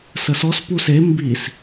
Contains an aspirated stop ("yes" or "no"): no